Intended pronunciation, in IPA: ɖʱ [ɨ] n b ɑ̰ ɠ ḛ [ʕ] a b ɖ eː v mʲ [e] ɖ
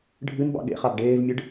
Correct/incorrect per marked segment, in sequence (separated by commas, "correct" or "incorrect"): correct, incorrect, incorrect